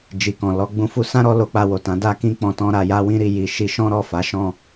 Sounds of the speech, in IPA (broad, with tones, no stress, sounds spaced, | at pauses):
d͡ʒ i˨ k ɔ̃˨ l ɔ˧ ɡ͡b ũ˧ f u˧ s ã˦ ɾ ɔ˧ l o˧ k͡p a˧ w o˨ t ã˨˦ d a˧ k ĩ˧ k͡p ɔ̃˧ t ɔ̃˦ ɾ a˧ j a˦ w ĩ˦ ɾ i˧ j i˨ ʃ i˧ ʃ ɔ̃˦ ɾ ɔ˦˨ f a˨˦ ʃ ɔ̃˦˨